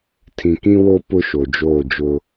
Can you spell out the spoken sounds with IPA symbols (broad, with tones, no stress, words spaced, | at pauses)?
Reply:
tʰĩ˨kĩ˦wo˦ pʊ˦ʃo˨ d͡ʒoː˦˨d͡ʒʊ˦